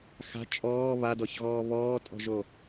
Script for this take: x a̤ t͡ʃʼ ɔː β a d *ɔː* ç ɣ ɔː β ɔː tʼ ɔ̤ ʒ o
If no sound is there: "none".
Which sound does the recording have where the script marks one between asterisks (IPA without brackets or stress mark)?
ɔ